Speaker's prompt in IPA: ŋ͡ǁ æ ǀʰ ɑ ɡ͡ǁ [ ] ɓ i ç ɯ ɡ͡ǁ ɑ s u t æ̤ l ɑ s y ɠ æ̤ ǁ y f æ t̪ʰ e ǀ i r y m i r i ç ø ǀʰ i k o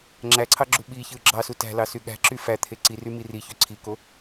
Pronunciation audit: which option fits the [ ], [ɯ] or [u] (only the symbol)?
u